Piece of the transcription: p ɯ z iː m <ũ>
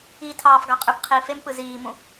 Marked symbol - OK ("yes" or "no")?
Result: yes